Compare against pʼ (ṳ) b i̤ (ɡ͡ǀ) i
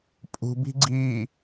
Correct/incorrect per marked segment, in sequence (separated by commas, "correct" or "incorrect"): correct, correct